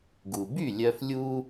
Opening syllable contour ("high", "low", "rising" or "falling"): low